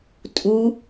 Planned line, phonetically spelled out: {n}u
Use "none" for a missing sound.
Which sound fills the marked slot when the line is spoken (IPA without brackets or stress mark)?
tʼ